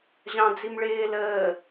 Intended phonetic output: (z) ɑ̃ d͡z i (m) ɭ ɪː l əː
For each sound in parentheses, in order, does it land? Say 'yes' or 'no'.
no, yes

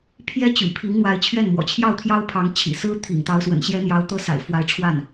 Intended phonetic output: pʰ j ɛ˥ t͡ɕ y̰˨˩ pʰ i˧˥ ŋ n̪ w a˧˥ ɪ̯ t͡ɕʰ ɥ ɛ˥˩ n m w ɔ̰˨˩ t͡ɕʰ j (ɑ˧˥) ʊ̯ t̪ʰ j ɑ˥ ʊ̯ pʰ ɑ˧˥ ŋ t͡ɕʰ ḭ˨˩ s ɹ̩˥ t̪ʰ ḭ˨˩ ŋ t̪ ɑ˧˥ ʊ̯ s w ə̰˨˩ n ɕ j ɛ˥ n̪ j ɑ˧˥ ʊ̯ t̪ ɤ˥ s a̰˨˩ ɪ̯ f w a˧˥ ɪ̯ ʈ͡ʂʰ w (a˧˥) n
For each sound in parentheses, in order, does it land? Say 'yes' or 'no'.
no, no

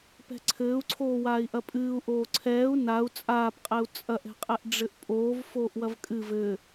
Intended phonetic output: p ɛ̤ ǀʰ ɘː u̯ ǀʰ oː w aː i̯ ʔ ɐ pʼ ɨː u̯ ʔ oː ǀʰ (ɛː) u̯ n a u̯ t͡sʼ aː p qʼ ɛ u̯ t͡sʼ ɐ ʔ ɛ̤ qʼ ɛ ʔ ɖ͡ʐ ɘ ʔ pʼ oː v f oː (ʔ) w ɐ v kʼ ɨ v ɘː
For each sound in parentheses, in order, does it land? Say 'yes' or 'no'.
yes, yes

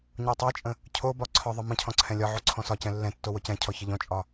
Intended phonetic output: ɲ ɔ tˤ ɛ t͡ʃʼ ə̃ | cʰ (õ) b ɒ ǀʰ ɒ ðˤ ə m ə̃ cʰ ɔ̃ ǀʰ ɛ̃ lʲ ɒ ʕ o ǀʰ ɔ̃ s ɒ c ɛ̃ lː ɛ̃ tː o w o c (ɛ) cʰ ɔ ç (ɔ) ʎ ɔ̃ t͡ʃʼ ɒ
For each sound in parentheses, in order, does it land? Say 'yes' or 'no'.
no, no, no

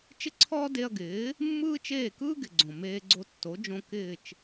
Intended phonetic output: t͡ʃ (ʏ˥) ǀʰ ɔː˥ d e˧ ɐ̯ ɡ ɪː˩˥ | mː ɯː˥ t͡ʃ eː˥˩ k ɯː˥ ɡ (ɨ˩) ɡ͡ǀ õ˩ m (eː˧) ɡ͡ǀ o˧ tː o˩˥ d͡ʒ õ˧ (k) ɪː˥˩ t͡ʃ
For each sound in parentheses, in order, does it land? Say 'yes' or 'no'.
no, no, yes, yes

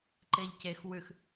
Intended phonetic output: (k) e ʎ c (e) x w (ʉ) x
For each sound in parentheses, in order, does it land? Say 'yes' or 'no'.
no, yes, yes

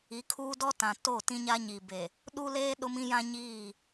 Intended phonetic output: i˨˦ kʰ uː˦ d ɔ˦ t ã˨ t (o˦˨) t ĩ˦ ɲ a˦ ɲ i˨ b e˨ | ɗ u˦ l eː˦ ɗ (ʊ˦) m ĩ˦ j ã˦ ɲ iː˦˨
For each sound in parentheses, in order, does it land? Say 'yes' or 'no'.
yes, yes

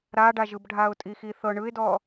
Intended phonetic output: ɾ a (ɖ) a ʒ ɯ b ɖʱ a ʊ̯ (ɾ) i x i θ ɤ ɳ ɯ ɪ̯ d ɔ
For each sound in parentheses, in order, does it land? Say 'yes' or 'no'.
yes, no

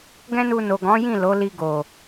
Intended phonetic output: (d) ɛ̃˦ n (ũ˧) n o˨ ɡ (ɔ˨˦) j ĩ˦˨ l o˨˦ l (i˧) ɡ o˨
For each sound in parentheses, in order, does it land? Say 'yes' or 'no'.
no, no, no, yes

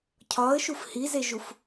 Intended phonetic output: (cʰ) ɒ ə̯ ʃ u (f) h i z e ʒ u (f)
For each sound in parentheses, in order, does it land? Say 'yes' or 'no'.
yes, yes, yes

